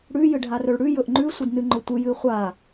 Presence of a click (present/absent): present